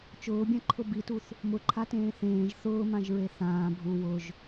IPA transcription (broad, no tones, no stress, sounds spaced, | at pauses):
t͡ʃ ʊː bʲ ã ǃʰ ʊ b i t u θ | m ʊ ǃʰ a t ẽː θ ẽː ʒ θ ʊː m ã ʒ ɹ e θ ãː bʱ u w ʊ ʒ